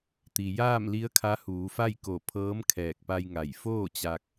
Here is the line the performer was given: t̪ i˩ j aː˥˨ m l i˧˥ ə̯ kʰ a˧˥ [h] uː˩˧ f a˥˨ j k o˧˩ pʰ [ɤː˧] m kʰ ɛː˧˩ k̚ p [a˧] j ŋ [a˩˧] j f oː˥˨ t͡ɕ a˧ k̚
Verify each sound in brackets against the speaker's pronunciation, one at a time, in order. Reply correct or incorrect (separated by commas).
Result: correct, incorrect, correct, incorrect